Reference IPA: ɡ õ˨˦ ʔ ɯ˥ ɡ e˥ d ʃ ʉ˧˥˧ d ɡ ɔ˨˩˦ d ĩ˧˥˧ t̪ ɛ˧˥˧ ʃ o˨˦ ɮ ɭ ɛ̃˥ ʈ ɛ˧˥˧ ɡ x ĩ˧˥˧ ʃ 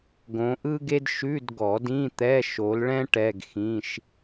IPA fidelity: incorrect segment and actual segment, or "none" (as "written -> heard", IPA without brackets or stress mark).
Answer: ɮ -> l